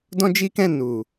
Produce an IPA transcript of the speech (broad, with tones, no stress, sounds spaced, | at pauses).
d ɔ̃˦ d͡ʒ i˦ k ɛ̃˦˨ n u˨